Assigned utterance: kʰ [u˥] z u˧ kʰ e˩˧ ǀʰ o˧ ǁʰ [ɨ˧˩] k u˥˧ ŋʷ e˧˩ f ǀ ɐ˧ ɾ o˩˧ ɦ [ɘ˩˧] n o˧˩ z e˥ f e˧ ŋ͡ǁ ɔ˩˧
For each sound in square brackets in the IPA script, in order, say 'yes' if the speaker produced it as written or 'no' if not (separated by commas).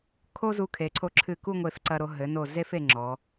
no, yes, yes